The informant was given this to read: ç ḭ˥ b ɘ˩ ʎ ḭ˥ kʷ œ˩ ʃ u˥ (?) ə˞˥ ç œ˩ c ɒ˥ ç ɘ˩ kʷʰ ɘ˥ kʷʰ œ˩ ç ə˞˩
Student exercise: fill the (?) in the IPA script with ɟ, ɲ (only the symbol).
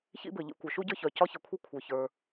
ɟ